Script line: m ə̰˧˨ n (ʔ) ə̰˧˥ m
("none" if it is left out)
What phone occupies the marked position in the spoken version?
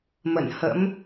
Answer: h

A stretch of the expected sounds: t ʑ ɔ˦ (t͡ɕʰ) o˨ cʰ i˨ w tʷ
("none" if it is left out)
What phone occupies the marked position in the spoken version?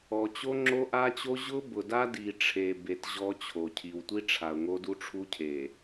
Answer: t͡ɕʰ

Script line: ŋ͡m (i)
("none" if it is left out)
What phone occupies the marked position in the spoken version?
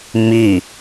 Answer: i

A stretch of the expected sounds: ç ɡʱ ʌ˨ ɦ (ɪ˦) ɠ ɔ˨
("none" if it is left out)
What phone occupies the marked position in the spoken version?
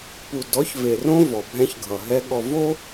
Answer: ɛ˦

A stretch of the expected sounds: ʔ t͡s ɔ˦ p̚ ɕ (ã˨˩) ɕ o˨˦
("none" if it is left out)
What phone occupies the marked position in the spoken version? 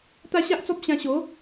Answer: ã˧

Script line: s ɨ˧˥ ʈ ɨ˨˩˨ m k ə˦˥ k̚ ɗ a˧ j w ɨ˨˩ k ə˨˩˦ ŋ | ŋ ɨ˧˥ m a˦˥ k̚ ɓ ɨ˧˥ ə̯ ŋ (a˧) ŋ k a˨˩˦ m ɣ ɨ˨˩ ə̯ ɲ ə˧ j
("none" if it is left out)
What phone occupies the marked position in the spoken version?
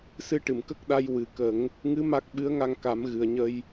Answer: a˧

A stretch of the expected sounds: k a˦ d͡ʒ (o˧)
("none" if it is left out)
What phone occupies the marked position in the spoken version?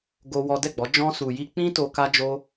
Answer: o˦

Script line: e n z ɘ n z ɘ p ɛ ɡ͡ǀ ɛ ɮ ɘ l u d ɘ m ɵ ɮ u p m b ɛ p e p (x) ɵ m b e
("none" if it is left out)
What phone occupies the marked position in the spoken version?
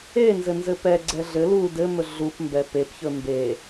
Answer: ç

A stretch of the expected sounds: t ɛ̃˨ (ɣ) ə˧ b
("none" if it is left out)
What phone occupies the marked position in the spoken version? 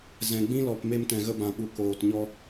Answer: ɣ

